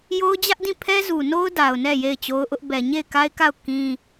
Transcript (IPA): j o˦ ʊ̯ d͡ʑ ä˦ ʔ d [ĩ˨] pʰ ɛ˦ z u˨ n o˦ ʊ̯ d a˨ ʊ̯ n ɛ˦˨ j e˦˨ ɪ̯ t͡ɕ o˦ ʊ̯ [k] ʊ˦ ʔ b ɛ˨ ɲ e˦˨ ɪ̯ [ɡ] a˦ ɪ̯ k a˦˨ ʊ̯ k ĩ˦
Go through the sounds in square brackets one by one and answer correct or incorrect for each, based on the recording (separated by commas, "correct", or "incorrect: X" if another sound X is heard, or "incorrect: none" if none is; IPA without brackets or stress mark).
incorrect: ĩ˦˨, incorrect: ʔ, incorrect: k